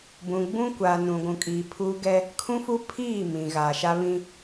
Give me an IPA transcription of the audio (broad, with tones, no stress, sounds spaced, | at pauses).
b ũ˨ ɡ͡b ũ˦ kʷ aː˨ n ũ˨ ɡʷ ũ˨ kʼ iː˨ pʰ uː˦ ɡ ɛ˦ | kʰ ũ˦ f u˦ pʰ iː˦˨ m ĩ˨ ɣ aː˨ ʃ a˦ β ĩ˦